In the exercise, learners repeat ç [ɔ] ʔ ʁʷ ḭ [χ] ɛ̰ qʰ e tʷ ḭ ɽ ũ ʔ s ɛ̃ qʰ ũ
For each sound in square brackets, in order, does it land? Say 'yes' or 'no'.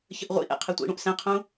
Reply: no, no

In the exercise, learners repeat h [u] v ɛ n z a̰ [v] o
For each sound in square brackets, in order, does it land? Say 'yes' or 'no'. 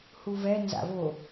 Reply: yes, yes

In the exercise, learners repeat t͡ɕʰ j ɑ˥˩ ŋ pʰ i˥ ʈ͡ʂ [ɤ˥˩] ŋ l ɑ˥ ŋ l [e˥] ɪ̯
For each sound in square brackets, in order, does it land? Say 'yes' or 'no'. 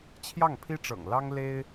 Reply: no, yes

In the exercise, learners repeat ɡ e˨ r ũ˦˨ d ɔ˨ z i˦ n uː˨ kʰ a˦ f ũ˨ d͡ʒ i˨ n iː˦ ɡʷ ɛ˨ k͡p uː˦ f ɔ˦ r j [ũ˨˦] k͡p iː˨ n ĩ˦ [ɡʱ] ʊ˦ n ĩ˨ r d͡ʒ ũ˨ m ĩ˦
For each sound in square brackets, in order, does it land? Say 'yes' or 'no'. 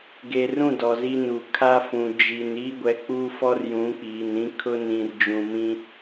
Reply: yes, no

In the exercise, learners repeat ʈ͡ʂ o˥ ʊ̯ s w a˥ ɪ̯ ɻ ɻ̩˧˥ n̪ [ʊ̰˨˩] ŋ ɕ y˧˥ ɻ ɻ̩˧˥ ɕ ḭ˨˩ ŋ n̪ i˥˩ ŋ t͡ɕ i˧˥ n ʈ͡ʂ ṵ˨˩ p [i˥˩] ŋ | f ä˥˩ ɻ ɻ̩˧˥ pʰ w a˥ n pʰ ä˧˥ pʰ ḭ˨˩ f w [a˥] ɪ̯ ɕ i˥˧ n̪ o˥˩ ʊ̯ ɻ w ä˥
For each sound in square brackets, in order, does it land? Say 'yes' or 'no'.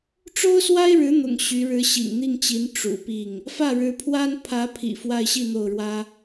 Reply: yes, yes, no

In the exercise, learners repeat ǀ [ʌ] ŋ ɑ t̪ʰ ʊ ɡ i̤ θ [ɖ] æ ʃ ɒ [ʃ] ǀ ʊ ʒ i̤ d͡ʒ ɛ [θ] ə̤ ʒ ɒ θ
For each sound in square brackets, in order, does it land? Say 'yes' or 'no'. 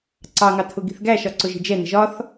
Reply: no, no, no, no

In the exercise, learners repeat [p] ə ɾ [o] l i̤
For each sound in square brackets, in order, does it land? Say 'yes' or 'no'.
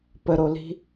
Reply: yes, yes

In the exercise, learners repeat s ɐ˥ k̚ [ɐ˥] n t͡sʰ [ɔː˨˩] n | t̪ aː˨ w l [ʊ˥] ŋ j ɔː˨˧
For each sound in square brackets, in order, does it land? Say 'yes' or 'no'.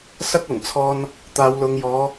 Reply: no, no, no

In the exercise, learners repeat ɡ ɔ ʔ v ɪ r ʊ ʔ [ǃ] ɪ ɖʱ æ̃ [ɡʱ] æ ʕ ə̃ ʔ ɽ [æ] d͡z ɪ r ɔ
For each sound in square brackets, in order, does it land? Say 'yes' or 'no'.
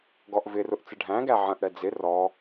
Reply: no, no, no

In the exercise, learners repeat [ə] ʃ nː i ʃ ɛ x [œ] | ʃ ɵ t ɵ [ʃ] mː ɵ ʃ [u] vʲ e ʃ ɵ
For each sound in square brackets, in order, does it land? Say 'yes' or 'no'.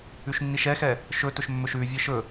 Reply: no, no, yes, no

